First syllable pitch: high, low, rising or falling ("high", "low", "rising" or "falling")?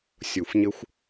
low